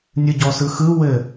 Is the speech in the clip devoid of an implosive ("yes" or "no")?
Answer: yes